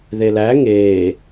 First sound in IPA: ð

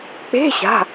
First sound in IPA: k͡p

